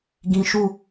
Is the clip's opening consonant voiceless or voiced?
voiced